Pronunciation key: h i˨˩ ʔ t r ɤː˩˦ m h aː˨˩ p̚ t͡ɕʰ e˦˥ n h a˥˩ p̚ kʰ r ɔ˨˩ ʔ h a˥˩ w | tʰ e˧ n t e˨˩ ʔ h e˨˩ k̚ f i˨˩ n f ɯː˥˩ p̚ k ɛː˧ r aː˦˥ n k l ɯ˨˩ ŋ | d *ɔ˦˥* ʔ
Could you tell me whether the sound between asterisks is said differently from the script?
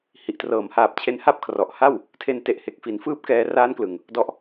no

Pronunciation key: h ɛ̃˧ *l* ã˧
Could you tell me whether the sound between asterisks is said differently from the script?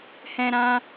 yes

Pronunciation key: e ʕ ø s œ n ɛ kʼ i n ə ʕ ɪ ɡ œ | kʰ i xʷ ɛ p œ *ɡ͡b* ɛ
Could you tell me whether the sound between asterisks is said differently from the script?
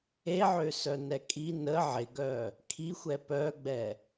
no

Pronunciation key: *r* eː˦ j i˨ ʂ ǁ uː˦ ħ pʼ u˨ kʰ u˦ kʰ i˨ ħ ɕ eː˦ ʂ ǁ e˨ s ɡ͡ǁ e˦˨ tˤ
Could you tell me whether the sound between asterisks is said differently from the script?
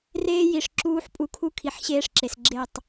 no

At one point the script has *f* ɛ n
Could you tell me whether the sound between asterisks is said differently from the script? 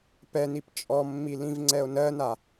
yes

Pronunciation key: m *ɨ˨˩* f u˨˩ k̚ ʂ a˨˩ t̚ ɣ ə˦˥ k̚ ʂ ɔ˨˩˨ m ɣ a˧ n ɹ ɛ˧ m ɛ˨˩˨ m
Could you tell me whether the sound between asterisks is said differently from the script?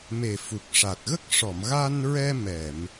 yes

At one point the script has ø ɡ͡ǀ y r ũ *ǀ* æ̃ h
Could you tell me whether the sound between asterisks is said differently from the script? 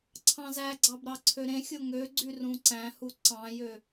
no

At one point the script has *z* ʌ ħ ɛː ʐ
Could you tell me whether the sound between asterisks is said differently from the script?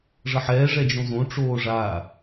yes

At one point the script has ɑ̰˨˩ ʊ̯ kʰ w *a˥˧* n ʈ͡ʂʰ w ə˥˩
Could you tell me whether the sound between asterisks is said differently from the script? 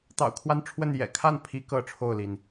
no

